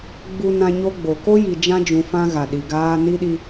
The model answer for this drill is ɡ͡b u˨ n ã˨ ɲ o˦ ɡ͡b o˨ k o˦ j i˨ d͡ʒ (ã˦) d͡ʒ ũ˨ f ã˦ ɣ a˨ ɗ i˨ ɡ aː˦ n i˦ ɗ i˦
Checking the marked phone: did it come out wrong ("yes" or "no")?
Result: no